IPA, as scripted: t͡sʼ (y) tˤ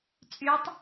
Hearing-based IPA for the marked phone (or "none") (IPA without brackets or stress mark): y